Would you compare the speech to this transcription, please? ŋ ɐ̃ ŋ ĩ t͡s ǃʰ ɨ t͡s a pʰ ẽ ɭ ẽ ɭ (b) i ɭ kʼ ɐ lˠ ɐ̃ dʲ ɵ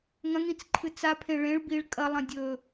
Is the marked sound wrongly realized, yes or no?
no